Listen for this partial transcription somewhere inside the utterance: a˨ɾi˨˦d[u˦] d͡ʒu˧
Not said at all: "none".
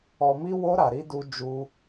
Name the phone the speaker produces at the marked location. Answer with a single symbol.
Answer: u˧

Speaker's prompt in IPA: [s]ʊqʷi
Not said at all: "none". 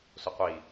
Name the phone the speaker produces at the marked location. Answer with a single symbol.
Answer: s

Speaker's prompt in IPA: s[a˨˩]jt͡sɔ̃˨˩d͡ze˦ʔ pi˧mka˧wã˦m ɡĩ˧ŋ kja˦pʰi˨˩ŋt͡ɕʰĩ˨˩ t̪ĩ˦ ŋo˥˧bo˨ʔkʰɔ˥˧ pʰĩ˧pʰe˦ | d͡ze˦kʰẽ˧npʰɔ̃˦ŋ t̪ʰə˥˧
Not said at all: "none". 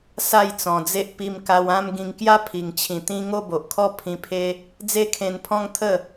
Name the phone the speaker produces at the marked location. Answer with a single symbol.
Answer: a˥˧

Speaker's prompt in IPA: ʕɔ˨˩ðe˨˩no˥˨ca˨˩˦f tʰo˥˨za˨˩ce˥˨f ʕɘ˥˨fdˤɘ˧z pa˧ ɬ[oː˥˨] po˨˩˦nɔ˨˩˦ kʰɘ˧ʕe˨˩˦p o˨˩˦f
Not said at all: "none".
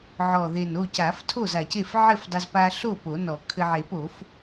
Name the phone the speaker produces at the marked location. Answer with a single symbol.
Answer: o˥˨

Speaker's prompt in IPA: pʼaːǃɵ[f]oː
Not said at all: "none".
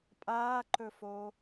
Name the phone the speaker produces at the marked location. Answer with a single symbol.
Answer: f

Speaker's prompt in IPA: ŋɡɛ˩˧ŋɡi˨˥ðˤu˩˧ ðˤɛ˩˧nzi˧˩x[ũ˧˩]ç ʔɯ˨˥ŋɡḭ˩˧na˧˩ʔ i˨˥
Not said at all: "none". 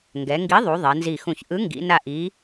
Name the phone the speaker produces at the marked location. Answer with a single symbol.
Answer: ũ˧˩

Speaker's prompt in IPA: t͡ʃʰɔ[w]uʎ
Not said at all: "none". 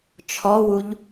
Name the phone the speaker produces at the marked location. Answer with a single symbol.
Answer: w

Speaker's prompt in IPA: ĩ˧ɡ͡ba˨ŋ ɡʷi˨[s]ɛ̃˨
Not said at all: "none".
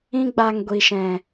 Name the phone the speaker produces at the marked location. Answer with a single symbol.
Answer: ʃ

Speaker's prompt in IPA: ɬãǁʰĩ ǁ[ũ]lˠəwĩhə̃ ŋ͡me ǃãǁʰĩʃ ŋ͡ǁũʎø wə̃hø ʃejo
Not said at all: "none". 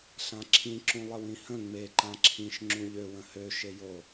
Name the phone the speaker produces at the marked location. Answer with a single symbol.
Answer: ũ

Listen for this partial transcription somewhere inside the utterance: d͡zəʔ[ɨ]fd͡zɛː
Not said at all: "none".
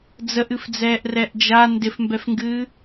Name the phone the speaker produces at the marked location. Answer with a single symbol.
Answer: ɨ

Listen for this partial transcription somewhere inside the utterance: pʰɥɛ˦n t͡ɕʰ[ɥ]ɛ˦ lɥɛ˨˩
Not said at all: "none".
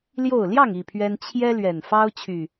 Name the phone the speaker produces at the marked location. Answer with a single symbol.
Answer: j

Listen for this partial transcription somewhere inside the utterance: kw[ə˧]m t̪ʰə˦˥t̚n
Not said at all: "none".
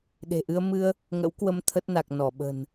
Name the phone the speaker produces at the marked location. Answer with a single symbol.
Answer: ə˧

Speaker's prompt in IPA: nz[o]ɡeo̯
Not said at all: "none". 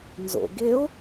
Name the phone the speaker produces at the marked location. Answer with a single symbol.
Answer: o̰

